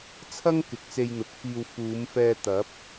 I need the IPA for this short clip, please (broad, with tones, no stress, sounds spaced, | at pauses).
t͡sʰ ɐ˥ ŋ k ɪ˨˥ k̚ t͡s e˧ j n̪ ʊ˨˥ k̚ f iː˧ w f uː˨˧ m f ɛː˧ t̪ ɐ˨˥ p̚